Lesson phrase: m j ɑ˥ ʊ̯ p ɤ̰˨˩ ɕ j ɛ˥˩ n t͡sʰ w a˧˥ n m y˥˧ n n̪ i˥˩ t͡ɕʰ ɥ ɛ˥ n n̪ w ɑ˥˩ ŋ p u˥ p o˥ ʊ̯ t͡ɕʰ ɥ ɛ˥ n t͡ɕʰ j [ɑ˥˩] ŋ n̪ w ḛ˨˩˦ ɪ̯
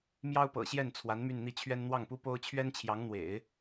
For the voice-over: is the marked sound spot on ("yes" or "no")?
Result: no